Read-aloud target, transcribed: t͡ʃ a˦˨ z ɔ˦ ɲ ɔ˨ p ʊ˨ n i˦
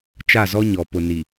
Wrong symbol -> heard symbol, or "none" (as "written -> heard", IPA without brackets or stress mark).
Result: i˦ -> i˨